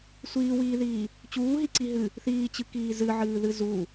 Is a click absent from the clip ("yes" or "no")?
no